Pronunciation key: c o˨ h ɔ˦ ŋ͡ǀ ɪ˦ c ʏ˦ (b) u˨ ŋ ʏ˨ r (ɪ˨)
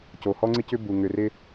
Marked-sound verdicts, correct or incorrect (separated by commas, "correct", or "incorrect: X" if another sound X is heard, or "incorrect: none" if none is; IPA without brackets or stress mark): correct, incorrect: ɪ˦